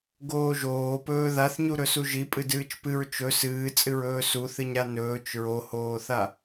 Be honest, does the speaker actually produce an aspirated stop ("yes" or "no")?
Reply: no